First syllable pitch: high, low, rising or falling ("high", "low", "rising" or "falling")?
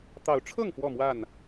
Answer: rising